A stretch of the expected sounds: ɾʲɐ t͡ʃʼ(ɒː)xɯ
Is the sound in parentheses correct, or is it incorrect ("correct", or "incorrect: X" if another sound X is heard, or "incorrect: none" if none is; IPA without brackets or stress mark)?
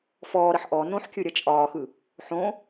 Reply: correct